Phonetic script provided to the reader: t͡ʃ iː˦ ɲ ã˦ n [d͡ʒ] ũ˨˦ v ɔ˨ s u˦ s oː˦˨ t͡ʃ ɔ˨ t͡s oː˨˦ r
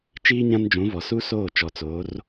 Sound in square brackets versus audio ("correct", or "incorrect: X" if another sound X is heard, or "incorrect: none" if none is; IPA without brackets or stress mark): correct